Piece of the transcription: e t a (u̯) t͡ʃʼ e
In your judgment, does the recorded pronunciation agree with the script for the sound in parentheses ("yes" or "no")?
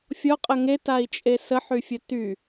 no